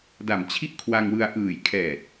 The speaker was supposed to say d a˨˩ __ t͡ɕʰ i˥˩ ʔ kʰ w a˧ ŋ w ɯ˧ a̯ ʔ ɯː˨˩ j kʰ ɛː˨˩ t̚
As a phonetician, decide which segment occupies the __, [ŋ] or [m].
m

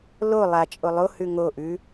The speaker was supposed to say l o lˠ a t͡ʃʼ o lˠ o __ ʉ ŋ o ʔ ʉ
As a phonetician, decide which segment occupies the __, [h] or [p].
h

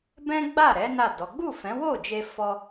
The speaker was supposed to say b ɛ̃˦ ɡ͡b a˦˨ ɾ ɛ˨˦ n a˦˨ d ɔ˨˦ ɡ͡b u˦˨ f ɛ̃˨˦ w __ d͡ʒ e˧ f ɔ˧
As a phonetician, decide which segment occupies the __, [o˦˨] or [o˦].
o˦˨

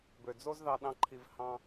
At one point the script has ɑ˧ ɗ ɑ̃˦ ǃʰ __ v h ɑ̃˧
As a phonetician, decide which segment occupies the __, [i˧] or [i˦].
i˧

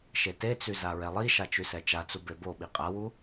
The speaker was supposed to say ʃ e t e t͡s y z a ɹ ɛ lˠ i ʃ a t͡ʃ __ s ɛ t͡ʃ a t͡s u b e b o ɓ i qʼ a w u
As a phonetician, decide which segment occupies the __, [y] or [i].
y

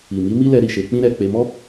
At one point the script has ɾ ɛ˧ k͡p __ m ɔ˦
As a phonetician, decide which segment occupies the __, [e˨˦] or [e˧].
e˧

